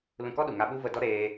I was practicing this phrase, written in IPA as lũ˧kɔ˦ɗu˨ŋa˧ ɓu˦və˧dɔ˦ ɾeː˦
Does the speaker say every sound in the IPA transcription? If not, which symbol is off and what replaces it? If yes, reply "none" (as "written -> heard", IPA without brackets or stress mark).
none